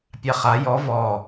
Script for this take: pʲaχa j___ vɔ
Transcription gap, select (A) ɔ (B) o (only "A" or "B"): A